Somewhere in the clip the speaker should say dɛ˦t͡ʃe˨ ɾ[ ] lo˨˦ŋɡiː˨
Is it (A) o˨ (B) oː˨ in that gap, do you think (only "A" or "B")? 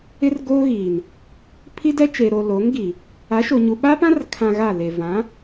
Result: A